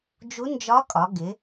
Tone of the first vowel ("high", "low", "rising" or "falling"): rising